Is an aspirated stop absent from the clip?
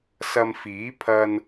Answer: no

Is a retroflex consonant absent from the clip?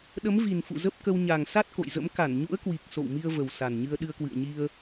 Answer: yes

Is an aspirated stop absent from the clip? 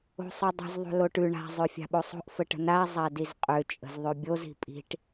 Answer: yes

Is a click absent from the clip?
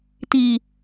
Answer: yes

